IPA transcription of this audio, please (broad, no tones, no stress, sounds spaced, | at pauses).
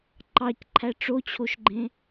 ǃ ɑ c ǃʰ æ ʈ͡ʂ o t͡ɕʰ o ʃ ɡ͡ǃ ẽ